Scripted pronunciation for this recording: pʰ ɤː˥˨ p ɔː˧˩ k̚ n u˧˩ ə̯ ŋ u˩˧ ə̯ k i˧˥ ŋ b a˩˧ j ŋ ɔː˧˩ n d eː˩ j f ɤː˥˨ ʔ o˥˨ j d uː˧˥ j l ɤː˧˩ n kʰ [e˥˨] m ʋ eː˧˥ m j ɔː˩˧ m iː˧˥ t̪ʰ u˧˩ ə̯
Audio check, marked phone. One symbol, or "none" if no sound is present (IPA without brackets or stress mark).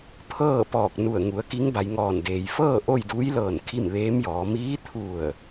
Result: i˥˨